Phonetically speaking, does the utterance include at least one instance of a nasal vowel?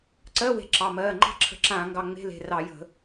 yes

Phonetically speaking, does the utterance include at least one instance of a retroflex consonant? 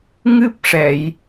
yes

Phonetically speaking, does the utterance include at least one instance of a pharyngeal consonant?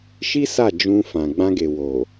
no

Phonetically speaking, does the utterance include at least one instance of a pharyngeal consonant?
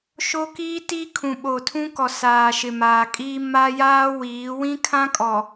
no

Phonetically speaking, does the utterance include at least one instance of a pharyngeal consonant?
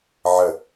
yes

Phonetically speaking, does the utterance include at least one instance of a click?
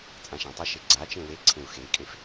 yes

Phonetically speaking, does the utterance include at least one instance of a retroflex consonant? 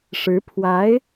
yes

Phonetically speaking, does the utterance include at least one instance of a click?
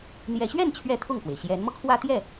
no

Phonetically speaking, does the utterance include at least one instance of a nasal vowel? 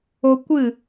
no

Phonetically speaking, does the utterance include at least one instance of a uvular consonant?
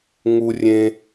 no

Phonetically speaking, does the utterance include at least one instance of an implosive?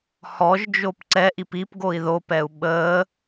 yes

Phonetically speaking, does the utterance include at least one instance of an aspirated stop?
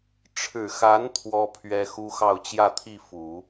yes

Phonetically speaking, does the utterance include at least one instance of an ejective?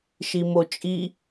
yes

